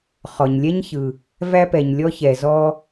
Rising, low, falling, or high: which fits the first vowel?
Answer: low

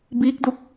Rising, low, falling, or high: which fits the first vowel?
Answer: rising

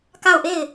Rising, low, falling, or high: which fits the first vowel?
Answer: falling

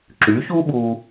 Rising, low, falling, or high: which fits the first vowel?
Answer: rising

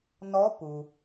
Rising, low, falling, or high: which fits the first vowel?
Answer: rising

